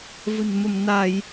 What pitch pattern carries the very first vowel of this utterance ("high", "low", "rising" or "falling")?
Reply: low